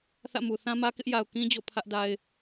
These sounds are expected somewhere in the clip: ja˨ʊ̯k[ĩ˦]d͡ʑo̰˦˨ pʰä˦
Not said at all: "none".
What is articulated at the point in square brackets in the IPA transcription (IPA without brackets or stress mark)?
ĩ˦